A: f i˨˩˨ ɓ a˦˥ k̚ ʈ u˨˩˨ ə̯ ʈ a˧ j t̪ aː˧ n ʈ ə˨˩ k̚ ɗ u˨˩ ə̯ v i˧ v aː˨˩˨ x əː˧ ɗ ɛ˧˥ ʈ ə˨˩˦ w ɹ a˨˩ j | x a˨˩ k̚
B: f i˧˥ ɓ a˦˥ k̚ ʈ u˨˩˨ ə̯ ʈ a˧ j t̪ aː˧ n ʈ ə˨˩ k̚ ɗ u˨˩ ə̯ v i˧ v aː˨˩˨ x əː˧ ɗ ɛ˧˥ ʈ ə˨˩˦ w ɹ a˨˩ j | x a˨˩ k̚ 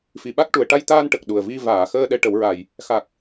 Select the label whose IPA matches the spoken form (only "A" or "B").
A